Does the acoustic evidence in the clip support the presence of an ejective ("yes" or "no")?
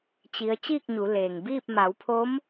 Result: no